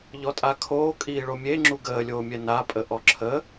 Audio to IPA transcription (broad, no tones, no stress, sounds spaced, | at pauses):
ʎ ɔ tʼ a kʰ oː kʼ iː ɭ o mʲ e ŋ͡ǁ u ɡ əː lʲ oː mʲ ɛ n a pʼ ə ʔ ɔ ǁʰ ə